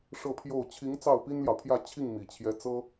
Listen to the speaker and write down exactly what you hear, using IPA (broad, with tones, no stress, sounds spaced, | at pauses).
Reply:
ʂ ɤ˥˧ pʰ j o˥˩ ʊ̯ t͡ɕʰ i˧˥ ŋ t͡s ɑ˥˩ ʊ̯ p i˥ n l j ɑ˨ ʊ̯ pʰ j ä˥˧ t͡ɕʰ i˥˩ ŋ m i˨˩ t͡ɕʰ j ɛ˧˥ t͡s ɤ˥